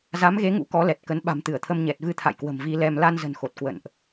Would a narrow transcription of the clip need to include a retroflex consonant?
no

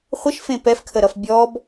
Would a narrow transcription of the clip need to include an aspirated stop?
yes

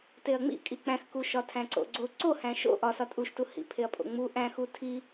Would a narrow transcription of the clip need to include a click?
yes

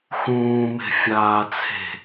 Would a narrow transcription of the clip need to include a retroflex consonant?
no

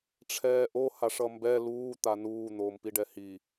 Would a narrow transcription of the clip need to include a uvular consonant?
no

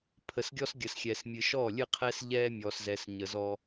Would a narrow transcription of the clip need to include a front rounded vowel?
no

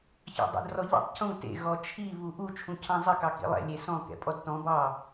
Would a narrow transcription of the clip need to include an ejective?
yes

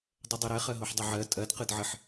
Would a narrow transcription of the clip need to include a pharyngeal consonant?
yes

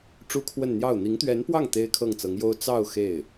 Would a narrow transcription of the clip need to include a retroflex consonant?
yes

